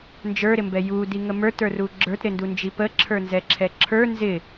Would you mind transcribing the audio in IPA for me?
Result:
n d͡ʒ ə˞ ɾ ɪ m b ɛ j u d i ŋ ə m ə˞ t ə˞ r u ɡ͡ǁ ə˞ t ɾ ɪ n d u n d͡ʒ i p ə ǁʰ ə˞ n z ɛ ǁʰ ɛ ǁʰ ə˞ n z ɪ

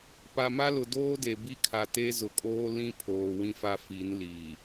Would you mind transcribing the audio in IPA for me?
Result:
p a˨ m a˦ l ʊ˨ d oː˦ d e˨ b i˦ kʰ a˨ t e˦ z ʊ˨ kʼ oː˦ l ĩ˦ pʰ oː˨ w ĩ˦ f a˦ f i˨˦ n l iː˨

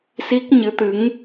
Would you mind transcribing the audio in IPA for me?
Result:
s i˦˥ k̚ ɲ ɨ˨˦ t̪ ɨ˨˦ ŋ

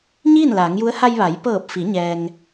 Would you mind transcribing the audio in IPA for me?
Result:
ɲ iː˥˨ n l aː˩˧ ŋ j u˧˥ ə̯ h a˧ j ʋ a˩˧ j p ɤː˧˩ p̚ f i˩˧ ɲ ɛː˧ ŋ

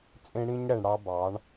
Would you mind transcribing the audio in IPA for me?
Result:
t͡sʼ ẽ˦ ɽ ĩ˦ ɲ ɽ ɛ˨ ɳ ɽ ɑ˦ b ɑ˨˦ ɳ

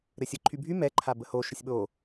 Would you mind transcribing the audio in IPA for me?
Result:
ɾ ɘ sʲ ə ǃʰ y bʱ y m ɛ ǃʰ a b ə h o ʃ ə sʲ ɓ o

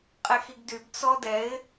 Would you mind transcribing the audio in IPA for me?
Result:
qʼ ɛ x i ɡ d y b t͡s ɔ d ɛ ɪ̯

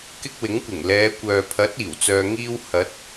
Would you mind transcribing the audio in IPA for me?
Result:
k ɪ˥ k̚ w ɪ˨˥ ŋ kʷ ɪ˨˩ ŋ l ɛː˨˧ kʷ œː˨ pʰ ɐ˨˥ t̚ iː˨˩ w t͡s œː˧ ŋ iː˥ w h ɐ˨˥ t̚

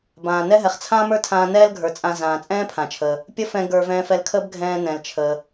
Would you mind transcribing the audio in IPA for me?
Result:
b ãː˩ n ɛ˥ ɦ ɛ˩ χ t͡sʰ ãː˥ m ə˞˥ tʰ ãː˧ n ɛː˥ l ɡʱ ə˞˩ t͡sʼ ã˧ z ãː˩ t͡sʼ ɛ̃ː˥ pʰ ã˩ t͡ʃʰ əː˩ | pʲ ə˥ f ɛ̃˧ ɡ ə˞˧ v ɛ̃ː˧ f ɛ˧ l kʰ əː˥ b ɡʱ ɛ̃ː˧ n ɛ̃˩ l t͡ʃʰ əː˩

